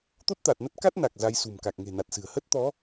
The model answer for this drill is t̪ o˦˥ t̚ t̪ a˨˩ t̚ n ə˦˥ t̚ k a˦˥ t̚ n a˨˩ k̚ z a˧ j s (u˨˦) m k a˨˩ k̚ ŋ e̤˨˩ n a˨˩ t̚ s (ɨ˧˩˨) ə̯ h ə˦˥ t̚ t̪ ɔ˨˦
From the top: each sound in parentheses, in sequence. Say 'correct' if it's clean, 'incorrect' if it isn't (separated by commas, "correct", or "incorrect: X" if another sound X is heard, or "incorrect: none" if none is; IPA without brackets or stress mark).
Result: incorrect: ṳ˨˩, incorrect: ɨ̤˨˩